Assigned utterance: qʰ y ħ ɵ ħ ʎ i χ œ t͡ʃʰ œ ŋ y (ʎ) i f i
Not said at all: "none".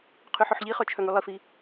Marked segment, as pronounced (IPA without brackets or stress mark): lˠ